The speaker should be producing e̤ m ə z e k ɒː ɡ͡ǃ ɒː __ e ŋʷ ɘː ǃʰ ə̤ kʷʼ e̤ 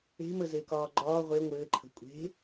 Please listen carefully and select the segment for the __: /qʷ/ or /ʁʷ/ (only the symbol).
ʁʷ